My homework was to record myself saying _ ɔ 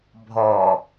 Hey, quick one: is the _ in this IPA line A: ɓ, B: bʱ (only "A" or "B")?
B